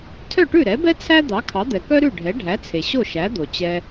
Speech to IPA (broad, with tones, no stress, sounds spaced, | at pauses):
tʰ œ˥˩ ʈ ʉ˥˩ ɾ ɛ˩˥ b ɛ˥ t͡sʰ æ˥ d̪ ɑ˩˥ kʰ ɑ˩˥ d̪ ɛ˩ k œ˥ ɾ ʉ˥˩ ɖʱ ɛ˩˥ ɖʱ æ˩˥ t͡sʰ e˩ ɕ o˥˩ ʃ æ˩˥ d̪ o˩ t͡ɕ ɛ˧